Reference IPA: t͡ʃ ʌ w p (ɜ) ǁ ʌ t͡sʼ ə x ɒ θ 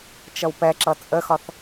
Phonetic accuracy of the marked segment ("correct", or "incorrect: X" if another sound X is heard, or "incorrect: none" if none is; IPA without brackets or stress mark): incorrect: ɛ